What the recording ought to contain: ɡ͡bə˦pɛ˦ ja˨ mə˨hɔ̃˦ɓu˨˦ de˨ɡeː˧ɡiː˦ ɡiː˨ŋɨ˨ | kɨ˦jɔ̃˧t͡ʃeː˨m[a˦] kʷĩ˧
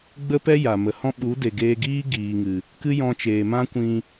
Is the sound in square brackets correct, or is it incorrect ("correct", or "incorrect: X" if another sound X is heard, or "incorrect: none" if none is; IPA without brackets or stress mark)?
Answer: incorrect: ã˦